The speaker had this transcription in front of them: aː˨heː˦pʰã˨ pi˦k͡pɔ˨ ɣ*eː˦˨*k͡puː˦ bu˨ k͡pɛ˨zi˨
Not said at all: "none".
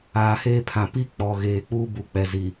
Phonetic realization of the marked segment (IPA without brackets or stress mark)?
eː˨